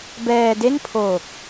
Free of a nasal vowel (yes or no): yes